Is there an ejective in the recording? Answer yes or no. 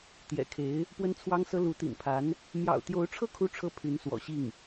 no